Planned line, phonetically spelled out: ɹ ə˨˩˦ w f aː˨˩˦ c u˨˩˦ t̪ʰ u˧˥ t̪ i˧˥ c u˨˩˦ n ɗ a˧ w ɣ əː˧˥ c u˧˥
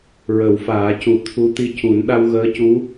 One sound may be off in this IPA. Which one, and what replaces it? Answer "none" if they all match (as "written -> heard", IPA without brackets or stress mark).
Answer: none